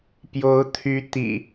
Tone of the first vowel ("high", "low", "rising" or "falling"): rising